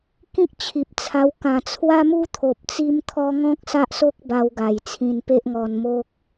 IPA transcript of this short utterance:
kĩ˦k̚t͡ɕʰi˨p̚t͡sʰa˧w kã˨˩t͡sʰwa˦mu˦ t̪ʰo˨p̚t͡si˦mt̪ʰɔ˦ ŋɔ̃˦k̚ sa˦ʔso˦k̚ ba˧wɡa˨˩j t͡sʰĩ˧npe˦ʔŋɔ˧nmo˦k̚

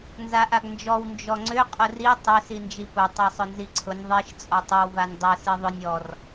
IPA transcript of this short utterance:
nzaʔaɡnd͡ʒɔw nd͡ʒɔŋ͡ǀʏ qʼʊri tˤʏ sind͡ʒipʊ tˤasˤʊnziǀʰʊnʲ ðˤiʃ t͡sʼɔtˤʏw vanʲdˤʊ siðˤʊnʲ ɔr

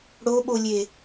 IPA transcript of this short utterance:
ɽoɓolʲe

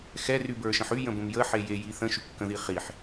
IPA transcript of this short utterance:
xɛ rybə˞ʃə̃ħy jə̃bə̃mjə ħeje jiθə̃ ʃykːə̃ðiχiħ

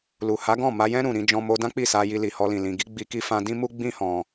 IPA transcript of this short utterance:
lu˨ha˨˦ɡɔ̃˦˨ma˧ jɛ̃˧ ɾũ˨ɾĩ˧d͡ʒɔ̃˧ mo˧dã˦k͡pi˦˨ sa˧ ji˧li˨hɔ˧lĩ˨ lĩ˨ɡi˨˦ ɡ͡bi˧ki˦ fã˧dĩ˦mu˦ ɡ͡bĩ˦hɔ̃˧

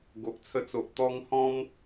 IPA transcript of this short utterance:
ɡo˨ʔt͡sʰə˧t͡so˨ʔ t̪ɔ˧ŋ hɔ̃˦m

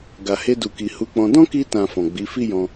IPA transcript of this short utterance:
ɡa˨he˧du˨ki˨ hu˨˦k͡pɔ̃˧ dɔ̃˦ki˧tã˨ fɔ̃˨ɡ͡bi˨˦ fi˦jɔ̃˧

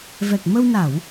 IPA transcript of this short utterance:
vɛ˨˩k̚mə˧w na˧˩˨w

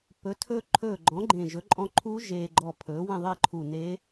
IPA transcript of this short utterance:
pɵ˩˥tʰɵː˧ǃʰɵː˧˩ɡ͡ǃɔ̃˩˥ ɡ͡ǃẽ˧˩ ʒɵ˩˥ǃʼɔ̃˧ǃʰuː˧˥ ʒeː˧ ɡ͡ǃɔ˧˩pʰɵː˩˥ wẽ˥˨ðˤe˥˨ǃʰu˧˩neː˧˥

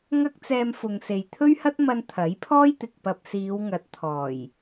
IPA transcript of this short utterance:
ŋɐ˥k̚t͡sɛː˧mfʊ˨ŋse˨j t̪ʰɵ˥ɥhɐ˥t̚mɐ˧n t̪ʰɐ˨˥jpʰɔː˥jt̪ɪ˨k̚ pɐ˧p̚ siː˨˧wŋɐ˨˥t̚ t̪ʰɔː˨˩j

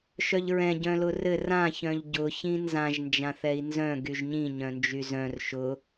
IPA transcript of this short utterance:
ʃœʎɹɛ̃ ɟœ̃lʊrɘ rã çœ̃ʎɟʊ çĩnzãʒ nd͡ʒãθɛi̯nzœ̃ ɡyʒɲĩ ɲœ̃nd͡ʒyzœ̃r ʃʊ

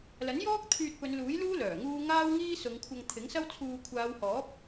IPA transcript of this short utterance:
lɐ˨˥njɔː˥k̚ t̪ʰyː˧t̚pɵ˨˧nluː˨˥jluː˥ lœː˨˩ŋuː˥ ŋaː˥wŋiː˥sʊ˨˧ŋkʷʰɐ˧ŋ t̪ʰɪ˨˥ŋsɐ˥wt͡sʰuː˧ kʷʰaː˨˧whɔː˨˥p̚

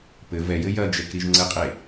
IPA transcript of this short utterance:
pɘ vɛjɘ jɐd͡ʒɛk ɾiʒŋ͡ǀɘqʼe

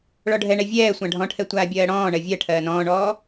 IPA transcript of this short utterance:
ɭɔɖʱɛɳɛ vʲɛː sʷãɖʱɔ̃ʈʰɛ tʷaːbʲɜːɽɔ̃ːɳɜ vʲɜ ʈʰɜːnɔ̃ːɳɔː

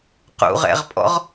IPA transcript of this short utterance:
qṵʁɛ̰ʁpʼɔ̰ʁ

